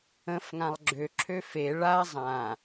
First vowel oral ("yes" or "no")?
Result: no